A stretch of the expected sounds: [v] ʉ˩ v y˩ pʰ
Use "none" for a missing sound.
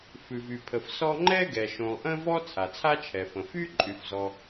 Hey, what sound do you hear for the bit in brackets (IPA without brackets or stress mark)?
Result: f